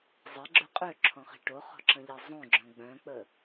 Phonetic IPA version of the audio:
zˤ ɛ ɡ͡ǁ ø qʼ ø ǁʰ ɔ̃ χ i̤ ʈ o χ ɔ̤ ǁ ə̃ ʎ e zˤ õ ɡ͡ǁ œ̃ ɡ͡b œ̃ k͡p ə

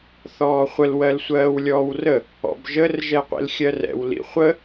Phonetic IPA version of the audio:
θ ɔː χʷ ə l w ɜ l sʷ ɜː w lʲ ɔː w r ə | ɔ̰ b ʒ ə r ʒ ɛ qʷ ḭ l xʲ ɜ r ɛ̰ w l ḭ χʷ ə

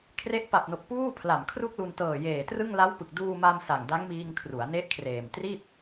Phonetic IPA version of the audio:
kʰ r e˦˥ ʔ p a˨˩ p̚ n o˨˩ k̚ p uː˥˩ pʰ l a˨˩ m kʰ r u˥˩ k̚ l u˧ n t ɤː˨˩ j eː˨˩ t r ɯ˥˩ ŋ l a˦˥ w p ɯ˨˩ k̚ d uː˧ m a˧ m s a˨˩ ŋ d a˦˥ ŋ m iː˧ ŋ kʰ r u˩˦ a̯ n e˦˥ ʔ kʰ r eː˨˩ m t r i˥˩ t̚

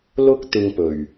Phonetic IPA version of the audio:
l ʊ˧ k̚ t̪ ɪ˧ ŋ p ɵ˨˩ ɥ

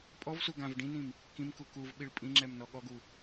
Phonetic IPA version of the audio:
pʼ ɔ v s u ɡ ã v ɖ ĩ n ĩ m | k ĩ m k u k u v ɓ i ɭ pʼ ĩ ŋ͡ǁ ɛ m n ɔ ɠ ɔ ɡ u

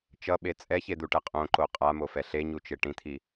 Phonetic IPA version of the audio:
t͡ʃ ʌ ɓ e t͡sʼ ɛ ç e d̪ u ʈ ɛ qʼ õ ǃ o qʼ a m o f ɛ ɬ e ɲ u t͡ʃ e ʈ ĩ t̪ʰ i

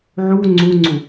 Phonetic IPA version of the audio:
ʕ u ŋ͡ǀ u ŋ͡ǀ u

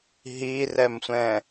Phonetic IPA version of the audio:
ɦ i r ɛ m sʷ ɛ̃

